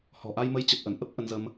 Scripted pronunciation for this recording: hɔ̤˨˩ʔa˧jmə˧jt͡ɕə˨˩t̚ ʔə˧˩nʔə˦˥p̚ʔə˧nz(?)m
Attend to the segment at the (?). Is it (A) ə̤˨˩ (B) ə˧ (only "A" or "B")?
B